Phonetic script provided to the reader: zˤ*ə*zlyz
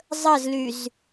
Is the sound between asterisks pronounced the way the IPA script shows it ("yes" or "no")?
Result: yes